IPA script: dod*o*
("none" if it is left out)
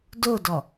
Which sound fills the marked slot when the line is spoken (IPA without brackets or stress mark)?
ɔ